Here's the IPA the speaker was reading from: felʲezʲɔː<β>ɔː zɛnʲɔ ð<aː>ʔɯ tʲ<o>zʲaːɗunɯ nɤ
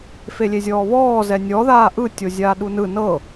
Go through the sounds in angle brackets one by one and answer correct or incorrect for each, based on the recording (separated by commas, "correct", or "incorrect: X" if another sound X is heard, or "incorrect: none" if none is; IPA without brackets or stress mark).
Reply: correct, correct, correct